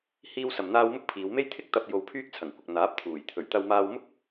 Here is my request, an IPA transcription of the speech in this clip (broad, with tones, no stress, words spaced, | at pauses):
hiː˥wsɐ˧mn̪aː˥w mʊ˥k̚pʰiː˨˧wme˥j t̪ʰɪ˥k̚t̪ɐ˧p̚ jo˧wpʰyː˥k̚t͡sʰɐ˨˩ŋkʷɐ˨k̚ n̪aː˨˥p̚t̪ʰuː˨˩j t̪ʰɵ˨˩ɥt̪ɐ˧wmaː˧wmʊ˥k̚